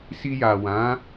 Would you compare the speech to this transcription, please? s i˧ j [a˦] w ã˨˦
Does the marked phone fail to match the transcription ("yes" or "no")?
yes